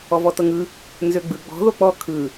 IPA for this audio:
ɔvɔtɤŋɯ | nzøɡ͡bɯ ɡ͡bɔ̤ ðok͡pɔ kʰɯ

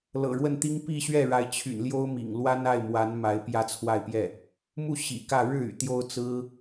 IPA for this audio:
lɤ̰˨˩ɻwə˥˩nt̪i˥ŋ pi˥˧ɕɥɛ˥˩ɻa˧˥ɪ̯ t͡ɕʰy̰˨˩nljo˥ʊ̯mḭ˨˩ŋ lwa˥na˥˩ɪ̯mwa˧˥n ma˧˥ɪ̯pjä˥˧t͡sʰwa˥˧ɪ̯pjɛ˥˩ | mu˥˩ ɕḭ˨˩kä˥˧ ɻɻ̩˥˩y̰˨˩ t̪jo˥ʊ̯t͡sɹ̩˥

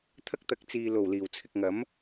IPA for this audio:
t̪ʰɐ˥k̚t̪ɐ˨˥k̚ t͡siː˨ lo˨˩w liː˨˩wt͡sʰɪ˨k̚ŋɐ˨˥m

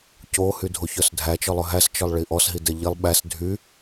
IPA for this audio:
co hydʱoçœsdʱæ t͡ʃɔlˠɵɦæs t͡ʃɔlˠɭiʔɔs ɦidɛʎilˠ ɓæs dʱy

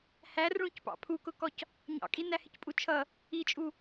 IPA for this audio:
hærɭũcpɑ̰ pʰukʊkɔc | ɲɑ̰kʼi næhɪcpʼut͡ʃʰʌ | it͡ʃʼu

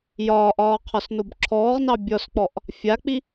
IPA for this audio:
jɒːʔɒː qʰɒsnobǁʰɔːʁnɑ bʲɔsk͡pɔʔ | fʲak͡pi

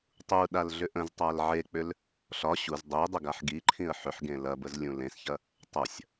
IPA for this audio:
tˤu ɗalɮʏʔə̃ztˤal ʕek͡pʏl | ɬɒ ɕuz dˤe dˤʏɡaħɡiǃʰĩə̯ ħʏħɡẽ lɐbəz lʲũlẽsçɐ | tˤɐsʲ

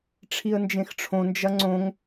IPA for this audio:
ʈ͡ʂʰiə̯nd͡ʒẽxʈ͡ʂʰõ nd͡ʒɐŋ͡ǀõŋ

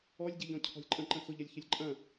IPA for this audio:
ɔlʲɟɛʎɔ̃ cʰɔ̤lʲǃʼə̃ ǃə̃xʊʎɐlʲ çəlʲǃʼɐ̃

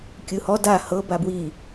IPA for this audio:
kʲɯhɔ da hɤ babwi

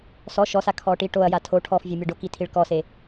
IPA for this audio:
sɔ ʃɔsa kʰɔʈiʈoɐ̯ja tʰo ʈʰɔfvʲɛ mʲeɖoki tʰiɭkɔse

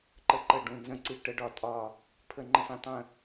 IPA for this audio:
ǃə˧˩ǃə˧˩ɖũ˧˩ nzə̃˧˩ǀi˧˩ ʈə˨˦ɖɒ˨˦tʼɒ˧˩ | pʰə˧˩ŋ͡ǃə̃˧˩sĩ˧˩ tˤə̃˧˩

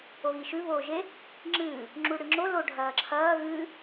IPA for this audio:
oɣiʃʉ βoːʒe | ŋ͡ǁɨː | ŋ͡ǁuɽɨŋ͡ǁo lo ɖʱɐːǁʰɐː ɣɨː

